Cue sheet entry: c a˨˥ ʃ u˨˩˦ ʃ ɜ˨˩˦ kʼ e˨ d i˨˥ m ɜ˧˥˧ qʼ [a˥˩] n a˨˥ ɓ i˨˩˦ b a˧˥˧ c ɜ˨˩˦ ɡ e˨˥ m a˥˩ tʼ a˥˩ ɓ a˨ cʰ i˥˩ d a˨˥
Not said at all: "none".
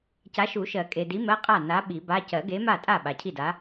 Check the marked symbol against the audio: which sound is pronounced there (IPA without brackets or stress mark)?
a˥˩